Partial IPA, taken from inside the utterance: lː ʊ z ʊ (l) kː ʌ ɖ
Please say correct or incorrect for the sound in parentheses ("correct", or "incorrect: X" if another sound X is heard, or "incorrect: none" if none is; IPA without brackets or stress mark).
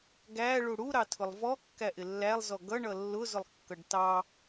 incorrect: lˠ